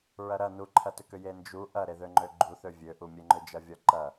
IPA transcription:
ɹ ɐ ɾ ɐ n u ǃʰ ɐ t ʏ k ʏ j e n d͡ʒ u ʔ ɐ ɾ e ð ø ŋ͡ǃ ø ɡ͡ǃ u θ ø vʲ ø ʔ u mʲ e ŋ͡ǃ ø d͡ʒ ɐ vʲ ɔ ǃ ɐ

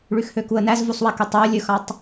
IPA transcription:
ɭ y x h ø k u ə̯ n æ z v u sˤ w ɛ k y tˤ æ ə̯ lʲ ɵ x ɑ tˤ

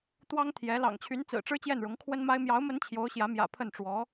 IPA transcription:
t̪ w ɑ˥ ŋ t̪ʰ j ɛ˧˥ l ɑ̰˨˩ ŋ t͡ɕʰ y˧˥ n t͡s ɹ̩˨˩ ʈ͡ʂ ɻ̩˥ t͡ɕ j ɛ˥˩ n ɻ ʊ˧˥ ŋ kʰ w ə˥ n m a˥ ɪ̯ m j ɑ˧˥ ʊ̯ m ə˧˥ n t͡ɕʰ j o˧˥ ʊ̯ ɕ j ä˧˥ m j ä̰˨˩ pʰ ə˥˩ n ʈ͡ʂ w ɔ˧˥

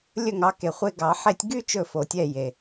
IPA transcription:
lʲ ɵ˥˨ ŋ ɑ˨˥ k e˨ χʷ e˦ ɡ ɑ˨˩˦ ħ e˦ tʲ ɡ y˦ t͡ʃ ɵ˥˨ f o˨˩˦ tʲ ɛ˥˨ j e˨

